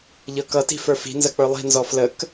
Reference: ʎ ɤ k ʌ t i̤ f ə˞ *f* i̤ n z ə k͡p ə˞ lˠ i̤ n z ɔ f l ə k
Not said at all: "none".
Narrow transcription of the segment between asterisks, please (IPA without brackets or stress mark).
f